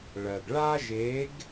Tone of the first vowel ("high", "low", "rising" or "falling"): low